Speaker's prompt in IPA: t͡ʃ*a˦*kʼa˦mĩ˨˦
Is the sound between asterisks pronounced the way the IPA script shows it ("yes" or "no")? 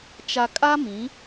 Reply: no